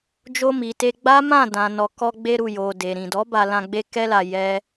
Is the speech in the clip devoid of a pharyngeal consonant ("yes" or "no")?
yes